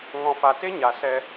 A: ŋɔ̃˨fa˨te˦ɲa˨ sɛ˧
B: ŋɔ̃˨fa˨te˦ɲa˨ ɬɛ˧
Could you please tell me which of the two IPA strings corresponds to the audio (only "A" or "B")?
A